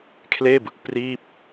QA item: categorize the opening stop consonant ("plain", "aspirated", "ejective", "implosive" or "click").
aspirated